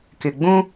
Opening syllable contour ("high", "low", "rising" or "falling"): low